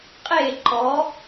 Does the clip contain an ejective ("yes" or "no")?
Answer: yes